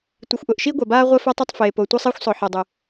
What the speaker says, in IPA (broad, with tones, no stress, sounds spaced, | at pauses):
tʷ i˩ xʷ ʔ ʊː˩ ʔ ʃ iː˥ ɡʷ a˩ b aː˥ ʁʷ ɛ˥ f o˥ tˤ ɛ˥ tˤ f eː˩ p o˩ tʷ a˥ sˤ iː˥ xʷ sˤ ʊː˩ ħ ɛ˩ dˤ ʏ˩